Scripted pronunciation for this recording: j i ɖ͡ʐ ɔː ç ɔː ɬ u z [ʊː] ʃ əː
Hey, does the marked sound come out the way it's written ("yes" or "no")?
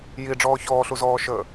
no